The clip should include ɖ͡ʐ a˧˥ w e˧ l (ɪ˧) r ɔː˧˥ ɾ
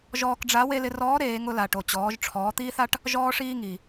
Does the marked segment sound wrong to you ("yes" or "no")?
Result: no